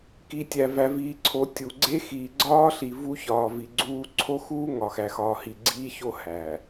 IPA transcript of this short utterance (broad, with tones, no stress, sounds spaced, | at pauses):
k i˨ tʲ æ˨ v æ˨ v iː˨ ǀʰ o˨ tʲ u˨ ɡ͡ǀ e˦ x iː˨ ɡ͡ǀ ɒː˦ ɬ i˨ v u˦ ç ɒː˨ v i˨ ɡ͡ǀ uː˦ ǀʰ o˦ x uː˦ ŋ ɒ˨ x æ˨ x ɒː˨ h i˨ ɡ͡ǀ iː˦ ç o˦ h æ˨